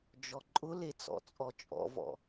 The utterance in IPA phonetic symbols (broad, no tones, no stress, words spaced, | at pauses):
d͡ʒɔǃʼʊle t͡sɔ̰t͡sʼɔt͡ʃʼɔ̰vɔ̰